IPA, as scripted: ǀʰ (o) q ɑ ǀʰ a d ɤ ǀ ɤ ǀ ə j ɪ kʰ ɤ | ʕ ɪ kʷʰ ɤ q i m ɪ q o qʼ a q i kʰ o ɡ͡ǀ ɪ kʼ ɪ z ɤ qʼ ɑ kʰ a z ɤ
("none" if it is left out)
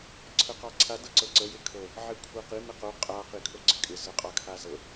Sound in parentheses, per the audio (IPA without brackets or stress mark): ɤ